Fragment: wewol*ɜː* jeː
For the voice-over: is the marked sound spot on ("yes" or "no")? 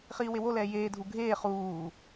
no